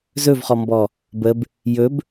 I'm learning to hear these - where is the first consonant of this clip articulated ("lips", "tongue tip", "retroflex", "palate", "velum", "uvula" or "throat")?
tongue tip